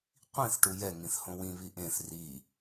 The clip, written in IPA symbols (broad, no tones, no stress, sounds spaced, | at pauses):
qʷ ĩ θ ʈ u j ɛ ŋ ĩ θ h õ w ĩ β i ʔ ẽ θ r i